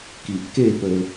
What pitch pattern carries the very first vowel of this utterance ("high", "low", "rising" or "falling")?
low